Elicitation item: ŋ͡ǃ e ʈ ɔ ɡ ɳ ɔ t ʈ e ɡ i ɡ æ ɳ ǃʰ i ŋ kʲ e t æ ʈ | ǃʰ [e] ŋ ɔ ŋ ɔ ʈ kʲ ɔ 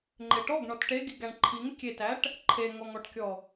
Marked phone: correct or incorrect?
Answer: correct